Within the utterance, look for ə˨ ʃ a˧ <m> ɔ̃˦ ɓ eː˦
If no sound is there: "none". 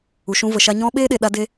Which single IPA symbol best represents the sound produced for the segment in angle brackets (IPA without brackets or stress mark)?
ɲ